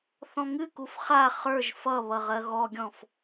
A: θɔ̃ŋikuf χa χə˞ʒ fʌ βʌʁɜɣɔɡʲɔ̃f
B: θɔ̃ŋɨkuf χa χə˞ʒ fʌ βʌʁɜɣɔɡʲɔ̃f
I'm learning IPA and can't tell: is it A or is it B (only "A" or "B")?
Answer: B